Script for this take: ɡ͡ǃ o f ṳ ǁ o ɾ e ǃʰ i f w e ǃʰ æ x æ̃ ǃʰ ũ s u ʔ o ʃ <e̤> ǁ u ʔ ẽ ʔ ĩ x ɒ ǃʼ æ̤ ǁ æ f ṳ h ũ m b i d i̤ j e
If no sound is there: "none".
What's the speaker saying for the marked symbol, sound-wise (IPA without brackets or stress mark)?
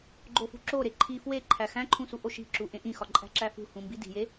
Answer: i̤